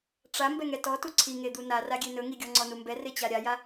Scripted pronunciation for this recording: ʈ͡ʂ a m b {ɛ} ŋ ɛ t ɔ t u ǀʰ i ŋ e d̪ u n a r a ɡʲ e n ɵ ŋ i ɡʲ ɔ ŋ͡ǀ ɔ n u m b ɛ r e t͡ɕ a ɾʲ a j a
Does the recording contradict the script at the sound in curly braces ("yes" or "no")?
no